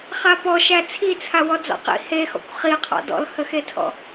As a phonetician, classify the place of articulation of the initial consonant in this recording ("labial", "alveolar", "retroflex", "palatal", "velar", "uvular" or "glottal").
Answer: uvular